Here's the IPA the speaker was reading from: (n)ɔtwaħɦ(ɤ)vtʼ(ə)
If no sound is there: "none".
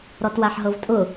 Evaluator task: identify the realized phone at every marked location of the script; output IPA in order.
ɾ, ɤ, ʊ

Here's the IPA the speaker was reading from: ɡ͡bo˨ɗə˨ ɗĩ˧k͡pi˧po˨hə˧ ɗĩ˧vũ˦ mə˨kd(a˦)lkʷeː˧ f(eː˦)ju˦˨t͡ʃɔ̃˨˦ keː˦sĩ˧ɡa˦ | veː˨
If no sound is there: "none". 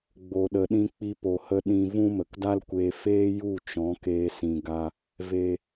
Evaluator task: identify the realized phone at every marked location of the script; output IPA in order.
a˦, eː˦

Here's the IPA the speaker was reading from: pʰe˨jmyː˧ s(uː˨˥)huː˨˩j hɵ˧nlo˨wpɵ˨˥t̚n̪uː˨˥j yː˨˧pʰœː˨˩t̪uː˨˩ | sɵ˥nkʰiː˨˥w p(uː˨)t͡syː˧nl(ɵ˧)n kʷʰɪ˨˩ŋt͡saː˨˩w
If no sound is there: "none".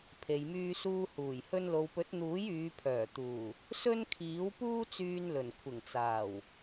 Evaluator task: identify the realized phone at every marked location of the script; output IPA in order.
uː˧, uː˥, ɵ˨˩

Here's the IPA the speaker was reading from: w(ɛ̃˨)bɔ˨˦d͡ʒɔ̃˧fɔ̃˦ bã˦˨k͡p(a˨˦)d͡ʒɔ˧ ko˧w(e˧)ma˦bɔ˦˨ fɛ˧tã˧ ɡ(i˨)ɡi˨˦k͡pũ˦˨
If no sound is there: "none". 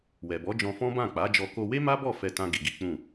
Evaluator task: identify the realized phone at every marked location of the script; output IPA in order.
ɛ˨, a˨˦, e˦, i˨

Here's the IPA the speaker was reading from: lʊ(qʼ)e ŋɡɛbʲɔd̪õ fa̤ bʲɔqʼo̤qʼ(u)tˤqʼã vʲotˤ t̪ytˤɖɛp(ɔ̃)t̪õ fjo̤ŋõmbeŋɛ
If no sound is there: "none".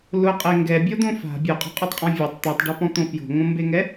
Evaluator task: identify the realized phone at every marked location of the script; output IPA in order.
qʼ, o, ɔ̃

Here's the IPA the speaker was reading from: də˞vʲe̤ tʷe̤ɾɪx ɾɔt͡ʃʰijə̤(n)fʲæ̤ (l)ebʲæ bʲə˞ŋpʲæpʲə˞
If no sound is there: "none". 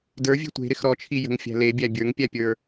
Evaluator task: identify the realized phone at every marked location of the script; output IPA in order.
ŋ, l

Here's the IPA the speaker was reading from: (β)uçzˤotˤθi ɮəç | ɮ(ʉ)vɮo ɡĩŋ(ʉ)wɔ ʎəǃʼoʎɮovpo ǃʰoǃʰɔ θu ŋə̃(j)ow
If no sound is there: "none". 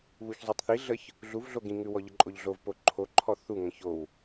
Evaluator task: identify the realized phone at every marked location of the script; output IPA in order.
β, u, ʉ, ç

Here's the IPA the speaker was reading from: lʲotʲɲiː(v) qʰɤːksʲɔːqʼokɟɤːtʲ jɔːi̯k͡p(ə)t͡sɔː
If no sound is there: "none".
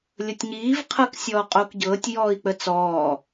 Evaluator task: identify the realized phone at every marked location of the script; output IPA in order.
v, ə

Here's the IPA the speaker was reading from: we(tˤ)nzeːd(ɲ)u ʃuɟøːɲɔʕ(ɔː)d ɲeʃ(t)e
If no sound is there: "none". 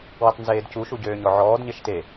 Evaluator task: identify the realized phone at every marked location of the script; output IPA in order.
tˤ, c, ɔː, t

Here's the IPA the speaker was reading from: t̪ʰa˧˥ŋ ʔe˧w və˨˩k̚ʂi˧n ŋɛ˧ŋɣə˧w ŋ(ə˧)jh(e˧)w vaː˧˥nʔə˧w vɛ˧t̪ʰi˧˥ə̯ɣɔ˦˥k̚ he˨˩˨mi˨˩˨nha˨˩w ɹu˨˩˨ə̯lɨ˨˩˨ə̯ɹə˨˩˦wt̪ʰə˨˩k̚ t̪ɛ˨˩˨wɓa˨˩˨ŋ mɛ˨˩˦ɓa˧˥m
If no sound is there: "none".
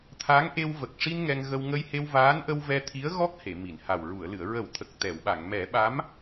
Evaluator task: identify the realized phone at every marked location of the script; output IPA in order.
ə˧, e˧

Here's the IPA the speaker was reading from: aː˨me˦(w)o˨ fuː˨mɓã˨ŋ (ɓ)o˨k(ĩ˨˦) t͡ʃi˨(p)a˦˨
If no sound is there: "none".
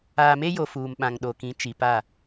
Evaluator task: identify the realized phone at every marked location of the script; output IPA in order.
j, ɗ, ĩ˨˦, p

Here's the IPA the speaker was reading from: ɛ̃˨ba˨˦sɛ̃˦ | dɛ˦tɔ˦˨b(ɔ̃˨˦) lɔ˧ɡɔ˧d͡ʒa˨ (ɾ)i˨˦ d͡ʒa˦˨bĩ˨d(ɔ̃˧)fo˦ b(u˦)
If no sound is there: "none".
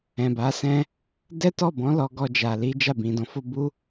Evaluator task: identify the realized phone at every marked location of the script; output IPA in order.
ɔ̃˨˦, l, ɔ̃˨˦, u˦

